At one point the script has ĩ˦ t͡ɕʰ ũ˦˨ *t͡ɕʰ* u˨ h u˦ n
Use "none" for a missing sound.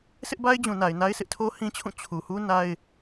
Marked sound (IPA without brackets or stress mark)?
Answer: t͡ɕʰ